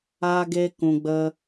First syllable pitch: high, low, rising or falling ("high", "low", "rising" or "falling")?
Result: high